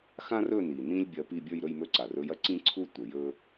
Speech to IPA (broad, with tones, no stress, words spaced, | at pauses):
xã˦rɵ˦˨ni˩ nĩ˦lʲ bʲɐ˨˦pi˦˨ bʲə˞˦˨jɾɵ˦˨jmɵ˦˨ ǀa˩r ɵ˨˦jɐ˦ǀĩ˦ǀʰu˦ tʷə˩ jɵ˦